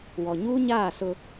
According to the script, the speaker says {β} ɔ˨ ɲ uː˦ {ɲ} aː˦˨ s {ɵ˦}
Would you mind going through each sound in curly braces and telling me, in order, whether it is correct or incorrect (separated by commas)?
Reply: incorrect, correct, incorrect